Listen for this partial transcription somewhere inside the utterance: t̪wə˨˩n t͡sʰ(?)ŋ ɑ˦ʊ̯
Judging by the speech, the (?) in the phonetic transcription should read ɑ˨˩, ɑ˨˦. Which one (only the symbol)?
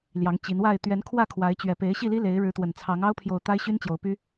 ɑ˨˦